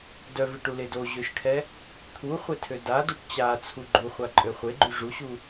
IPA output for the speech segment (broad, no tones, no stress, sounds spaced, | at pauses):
d œ v i ʈ u l e d o ʑ ø ʃ kʰ ɛ | t̪ʰ u χʷ e tʰ ø d a d u ʈ t͡ɕ a t͡sʰ u ɡ͡ǃ u χʷ a ǃʼ ø χʷ e ɡ͡ǃ y ʐ u ɕ u